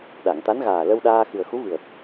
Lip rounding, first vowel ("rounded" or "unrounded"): unrounded